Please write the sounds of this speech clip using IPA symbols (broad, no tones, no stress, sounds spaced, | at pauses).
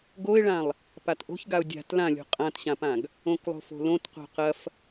ɡ o ɪ̯ ɭ ã lˠ | p a t ʔ o̤ ç ɡ a ʊ̯ dʲ a̤ t l ã lʲ o̤ qʼ ã t ɕ ã p ã ɡ | õ k lˠ o̤ f o̤ l õ t q o̤ q ɐ f